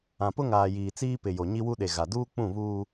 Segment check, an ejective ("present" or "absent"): absent